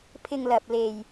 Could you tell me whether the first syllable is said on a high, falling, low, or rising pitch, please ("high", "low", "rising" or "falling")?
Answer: low